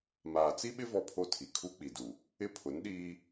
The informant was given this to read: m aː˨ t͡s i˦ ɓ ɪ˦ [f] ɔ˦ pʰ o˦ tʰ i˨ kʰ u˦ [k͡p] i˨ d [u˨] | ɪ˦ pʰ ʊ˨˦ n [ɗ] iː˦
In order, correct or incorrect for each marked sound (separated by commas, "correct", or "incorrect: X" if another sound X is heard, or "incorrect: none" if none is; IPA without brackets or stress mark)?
incorrect: v, correct, correct, correct